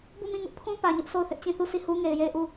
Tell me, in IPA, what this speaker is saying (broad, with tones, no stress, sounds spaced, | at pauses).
b u˦˨ m ĩ˦˨ ŋ ʊ˦ ʔ pʰ ũ˦ p ä˨ ɲ ʊ˦ ʔ s o˦˨ ʊ̯ θ ɪ˦ ʔ t͡ɕ ĩ˦˨ θ u˦˨ sʰ i˦˨ h u˦ ŋ e˨ ɪ̯ j e˦˨ ɪ̯ ʔ u˦˨